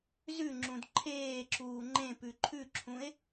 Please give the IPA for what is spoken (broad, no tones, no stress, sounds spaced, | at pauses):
z ʉ ŋ͡ǁ ũ d ǃʰ eː ǁ uː ŋ͡ǃ ẽ p ʉ ǃʰ ʉ ǁʰ ũ e̯